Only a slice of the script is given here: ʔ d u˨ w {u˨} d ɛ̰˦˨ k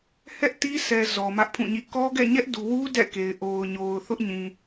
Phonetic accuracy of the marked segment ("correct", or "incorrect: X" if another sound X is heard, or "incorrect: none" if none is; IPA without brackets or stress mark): incorrect: u˦